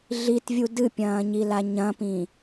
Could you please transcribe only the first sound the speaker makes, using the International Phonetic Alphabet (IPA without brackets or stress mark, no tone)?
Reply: ɮ